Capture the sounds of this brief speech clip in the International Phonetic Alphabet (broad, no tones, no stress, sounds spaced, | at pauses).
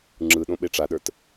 ŋ͡ǁ ɯ ɗ õ ɓ e ʈ͡ʂ a ɗ ə˞ t